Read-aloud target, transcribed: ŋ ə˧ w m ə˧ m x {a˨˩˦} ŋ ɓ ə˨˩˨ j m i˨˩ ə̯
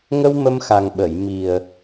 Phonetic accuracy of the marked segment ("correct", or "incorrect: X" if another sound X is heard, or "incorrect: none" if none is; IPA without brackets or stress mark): incorrect: a˨˩